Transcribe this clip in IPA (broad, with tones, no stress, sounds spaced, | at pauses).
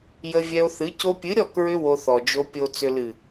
j ə˧ vʲ ɛ˧ o̯ θ ɨ˨˦ c o˧ pʲ ɨ˨˦ ɾʲ ɔ˦˨ k ɹ ʏ˧ w o˧ θ ɔ˨ d͡ʒ o˧ pʲ o˨ t͡s ʏ˨ l ɨ˨